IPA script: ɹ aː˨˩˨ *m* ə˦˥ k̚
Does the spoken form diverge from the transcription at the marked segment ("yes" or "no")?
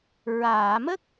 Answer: no